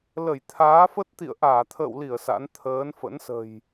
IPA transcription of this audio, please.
l ə˧˩ j t̪ʰ aː˨˦ f ə˦˥ t̚ t̪ ḭ˧˨ ə̯ ʔ aː˧˩ t̪ʰ ə̰ː˧˨ w l i˧˩ ə̯ s a̰˧˥ n t̪ʰ əː˨˦ n f ə̰˧˥ n s ə̤˨˩ j

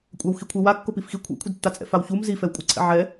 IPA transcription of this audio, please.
kʷʼ a w x i kʷʰ e w a kː o p i f x i kʷʰ ɛ̰ kʷʰ ɪ d tː a t͡sʼ ɛ̰ f a w ç u m z i f ɛ w kʷʼ ɪ ǀʰ ɛ̰ ʕ ɛ

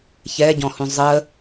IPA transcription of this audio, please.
ç ɛ ɟ ɔ̃ h ũ zˤ ə

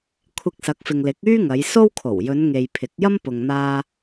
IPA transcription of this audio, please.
kʷʰ ɪ˧ k̚ s ɐ˨˥ k̚ f ɪ˨ ŋ l ɪ˨˥ k̚ yː˥ ŋ ɐ˨˧ j s o˥ w kʰ o˨˩ w j ɵ˨˧ n ŋ e˨ j pʰ ɪ˨˥ k̚ j ɐ˥ m p ʊ˨ ŋ n̪ aː˧

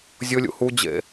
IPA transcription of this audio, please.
zʲ ʊ lʲ ṵ h u d͡ʑ ḛ

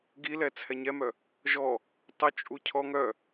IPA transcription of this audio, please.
ɡ i l ɛ t͡sʰ ɛ ɲ ɛ m œ | ʒ ɔ | tˤ œ t͡ʃʼ u cʰ ɔ ŋ œ

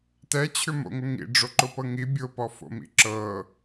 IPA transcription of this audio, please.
t ɛ t͡ɕʰ ʏ m o̰ ŋ ʊ ŋ ḭ ɖ͡ʐ o ǃ ʊ p ɤ ŋ i bʲ ʊ p ɔ f o̰ m ḭ ǁ ɤ

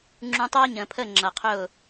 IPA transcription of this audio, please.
ŋ͡ǁ ũ˧ tˤ ɜː˦ ɲ ə̃ː˨ pʰ əː˦˨ ŋ͡ǁ ʌ˨ qʰ ʊː˦˨

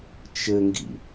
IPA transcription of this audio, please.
t͡ʃ ɘ ŋ ɡ ḭ

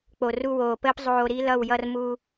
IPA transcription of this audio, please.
k͡p o˨ r u˧ w oː˨ p əː˦ p zˤ oː˧ ɾ i˦ l ʌ˦˨ w j ʌ˧ r m u˧

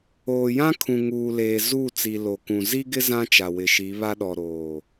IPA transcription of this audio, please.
oː˨ j ã˦ kʰ ũ˨ ŋ uː˨ l eː˨ z u˦˨ t͡s i˨ l o˨ k ũ˨ z i˦ ɡ ɪ˦ z ã˦ t͡ʃ a˨ w ɪ˨ ʃ i˨˦ β a˦ ɗ ɔ˨ ɾ oː˨

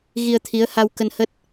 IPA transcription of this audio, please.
ɣ i˧ ə̯ t̪ʰ i˨˦ ə̯ h a˧ w k ə˧ n h ə˦˥ t̚

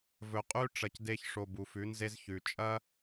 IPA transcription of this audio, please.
v ɵ˨ qʼ ʉ˦ ʈ͡ʂ ɐ˧ c d e˦ ç ʂ o˧ b u˨ f ʉ˨˦ n z e˦ z ç ʉ˧ t͡ʃʼ ɐ˦

